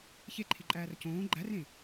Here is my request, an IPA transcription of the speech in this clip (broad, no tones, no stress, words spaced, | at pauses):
çeǃʰiǃʼæːr cõː ɡ͡ǃærẽ